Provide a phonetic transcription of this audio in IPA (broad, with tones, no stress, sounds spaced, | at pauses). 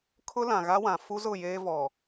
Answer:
kʰ ʊ˦ l ã˨ ɣ a˦ w ã˨ f u˦ z ʊ˦˨ j eː˦ v ɔ˨